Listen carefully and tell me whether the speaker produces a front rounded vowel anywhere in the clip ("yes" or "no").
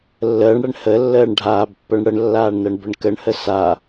no